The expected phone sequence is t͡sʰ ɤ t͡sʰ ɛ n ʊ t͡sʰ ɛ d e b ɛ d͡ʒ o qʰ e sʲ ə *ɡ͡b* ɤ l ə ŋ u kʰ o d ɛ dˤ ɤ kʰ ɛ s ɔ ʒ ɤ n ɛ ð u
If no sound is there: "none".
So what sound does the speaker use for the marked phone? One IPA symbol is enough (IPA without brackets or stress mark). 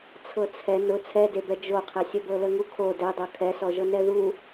b